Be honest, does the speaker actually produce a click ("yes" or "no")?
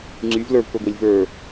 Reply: yes